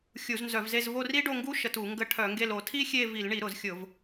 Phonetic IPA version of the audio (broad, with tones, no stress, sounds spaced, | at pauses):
xʲ u˧˩˧ z n z œ˧˩˧ v z e˦˨ z v o˦˨ r i˦˥ ɖ o˦˨ ŋ ɡ u˦˥ ʃ ə˧˩˧ t u˧˩˧ ŋ ɡ ə˦˨ ʈʰ œ˧˩˧ ŋ ɡ e˦˨ l o˧˩˧ tʰ i˦˥ xʲ e˦˨ v i˧˩˧ l ɳ i˧˩˧ ɾ ʊ˧˩˧ z xʲ ʊ˧˩˧ v